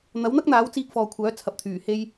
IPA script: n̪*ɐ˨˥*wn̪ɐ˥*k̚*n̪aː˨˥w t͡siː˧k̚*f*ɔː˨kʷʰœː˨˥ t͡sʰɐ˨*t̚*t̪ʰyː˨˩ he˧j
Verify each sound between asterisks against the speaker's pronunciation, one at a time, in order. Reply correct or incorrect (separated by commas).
correct, correct, correct, incorrect